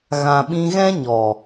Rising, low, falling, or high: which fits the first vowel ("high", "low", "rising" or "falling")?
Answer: low